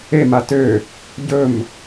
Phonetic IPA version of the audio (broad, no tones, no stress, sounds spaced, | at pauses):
e m a t ø | ɟ ɵ m